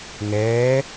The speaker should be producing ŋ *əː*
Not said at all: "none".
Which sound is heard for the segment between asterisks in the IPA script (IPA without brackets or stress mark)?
ɛː